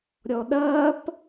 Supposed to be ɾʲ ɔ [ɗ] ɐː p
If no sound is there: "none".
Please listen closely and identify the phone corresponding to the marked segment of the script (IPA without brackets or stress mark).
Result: ɗ